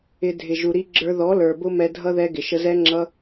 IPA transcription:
ɪ˧dʱɪ˨ ʒu˨ɾi˧ɡ͡ǁə˞˧ ðɔ˨˦lə˞˨ bʊ˦mɛ˧dʱʌ˦ ðɛ˦ɡɪ˨ ʃə˧zɛ˦ŋ͡ǁʌ˦

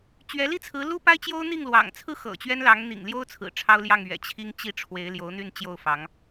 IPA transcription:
t͡ɕɥɛ˧˥li˥t͡sʰɹ̩˧˥ lu˥pa˥ɪ̯t͡ɕjo˥ʊ̯ n̪i˥˩ŋlwɑ̰˨˩ŋt͡sʰɹ̩˥ xɤ̰˨˩t͡ɕɥɛ˥nlɑ˧˥ŋ n̪ḭ˨˩ŋljo˥ʊ̯ t͡sʰɹ̩˨˩ʈ͡ʂʰɑ˥ʊ̯ljɑ˥˩ŋ ɥɛ̰˨˩ t͡ɕʰi˥ŋt͡ɕi˥˩ ʈ͡ʂʰwe˧˥ɪ̯ljo˧˥ʊ̯n̪y˥˧n t͡ɕjo˥˩ʊ̯fɑ˧˥ŋ

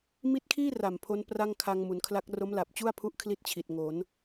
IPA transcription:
mi˦˥t̚kʰiː˥˩ ra˨˩mpʰo˦˥n pra˥˩ŋkʰa˧ŋ mu˩˦nkʰla˦˥k̚ ro˦˥mla˨˩p̚t͡ɕu˥˩a̯pʰu˦˥ʔ kʰli˥˩t̚t͡ɕʰi˨˩t̚ŋo˩˦n

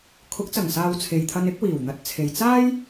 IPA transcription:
kʰʊ˨˥k̚t͡sɐ˨˩ŋsaː˨w t͡sʰe˨jt̪ʰɐ˧n ɪ˨˥k̚wiː˨˩wn̪ɐ˨t̚t͡sʰe˨j t͡saː˥j

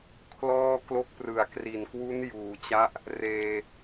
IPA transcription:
kʰlɔː˥˩ klo˦˥k̚prɯ˨˩a̯kri˨˩nkwu˦˥n juː˩˦t͡ɕa˦˥ʔ | reː˧

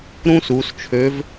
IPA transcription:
ɾũ˥su˩˧st͡ʃʰø˧˥v

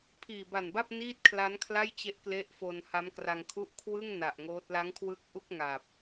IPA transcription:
pʰiː˨˩ba˨˩nba˥˩p̚ niː˥˩t̚kʰla˦˥nkʰla˥˩jt͡ɕe˦˥ʔ kle˦˥ʔfo˧n ha˦˥mkra˧ŋkʰu˥˩ʔ kʰwɯ˥˩ŋ na˨˩ʔŋoː˦˥t̚ la˦˥ŋkʰwɯ˦˥k̚ʔu˥˩k̚ ŋa˨˩p̚

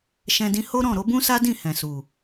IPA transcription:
ʃɛ̃˧dĩ˧ ho˦ɾɔ̃˦˨ ɾo˨˦bũ˦sa˦dĩ˦˨ hɛ̃˨su˨

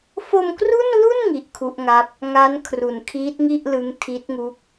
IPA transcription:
fo˧mkru˥˩nlu˥˩n ŋi˦˥ʔkʰu˦˥ʔŋa˦˥p̚ | ŋa˦˥n kʰru˨˩nkʰiː˦˥t̚ŋi˥˩ʔ lɯ˦˥ŋ tʰi˦˥t̚ŋu˦˥k̚

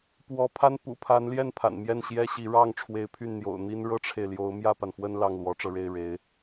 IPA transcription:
pwɔ˧˥pʰa˥n pṵ˨˩pʰa˧˥nljɛ˥˩n pʰa̰˨˩nmjɛ˥˩nɕjɛ˥ɕi˧˥ ɻɑ˥˩ŋ ʈ͡ʂʰwe˧˥ɪ̯pʰy˥˩n n̪jo̰˨˩ʊ̯n̪i˥n ɻɤ˥ʈ͡ʂʰe˨ɪ̯ljo˧˥ʊ̯ mjä˥˩pa˩n fwə˥˧n lɑ˥˩ŋlwɔ˧˥ʈ͡ʂɤ˧ ɻe˥˩ɪ̯ɻe˧˥ɪ̯

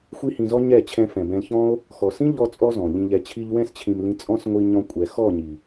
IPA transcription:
xʷi˦hĩ˧zɔ˦ ɲɛ˦˨t͡ɕʰɛ̃˧ fɛ̃˨bɛ̃˧lçɔ̃˦o̯ | xɔ˨sĩ˦ ʎɔ˦t͡sʼɔ˦zɔ̃˨ ʎĩ˨ʎɛ˨t͡ɕʰi˧ʎ wɛ̃˧st͡ɕʰĩ˨m lĩ˧t͡sʼɔ̃˦s ŋʷi˧ ɲɔ̃˧kʷʼɛ˨ xɔ˦˨ɲi˨

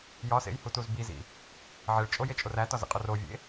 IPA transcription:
jɒsḛjhutuz bizḭ | ʕeɭt͡ʃʼojet͡ʃʼor ætɒzḛqʼo rovʲḛ

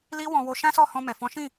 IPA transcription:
li˦wɔ̃˧wo˧ ʃã˦sɔ˦˨ hɔ̃˧mɛ˨fɔ̃˨˦ʃĩ˦˨

